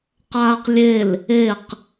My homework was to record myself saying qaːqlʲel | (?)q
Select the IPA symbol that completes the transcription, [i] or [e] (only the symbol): e